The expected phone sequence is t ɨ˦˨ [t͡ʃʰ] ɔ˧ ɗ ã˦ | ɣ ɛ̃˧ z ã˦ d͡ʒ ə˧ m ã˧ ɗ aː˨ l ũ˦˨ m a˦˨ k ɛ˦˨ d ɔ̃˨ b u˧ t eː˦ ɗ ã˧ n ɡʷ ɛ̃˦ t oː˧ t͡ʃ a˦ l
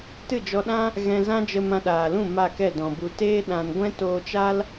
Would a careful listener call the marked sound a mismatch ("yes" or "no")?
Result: yes